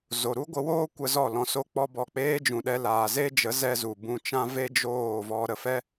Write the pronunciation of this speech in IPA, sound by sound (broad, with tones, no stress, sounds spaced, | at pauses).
z o˨ ɾ u˦ ɡʷ ə˧ w oː˦ kʷ ə˧ z ɔ˦˨ l ɔ̃˧ s o˦ k͡p ɔ˦ b ɔ˦˨ k͡p eː˦ d͡ʒ ũ˨ ɗ ɛ˧ l aː˨ z e˦ d͡ʒ ə˨˦ z ɛ˧ z u˨ b ũ˧ t͡ʃ ã˦ v e˦ d͡ʒ oː˦˨ v ɔ˧ ɾ ə˨ f ɛ˦